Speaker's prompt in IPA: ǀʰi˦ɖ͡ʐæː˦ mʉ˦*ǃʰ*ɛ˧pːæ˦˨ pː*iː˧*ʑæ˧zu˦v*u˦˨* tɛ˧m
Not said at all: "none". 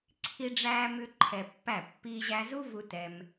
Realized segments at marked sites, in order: ǃʰ, iː˧, u˧

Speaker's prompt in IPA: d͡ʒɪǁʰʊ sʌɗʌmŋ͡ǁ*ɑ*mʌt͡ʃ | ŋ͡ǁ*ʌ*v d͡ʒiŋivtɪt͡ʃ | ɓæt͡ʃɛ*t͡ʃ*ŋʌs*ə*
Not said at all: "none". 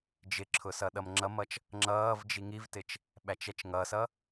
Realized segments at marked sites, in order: ʌ, ʌː, t͡ʃ, ʌ

